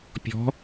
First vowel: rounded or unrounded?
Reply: rounded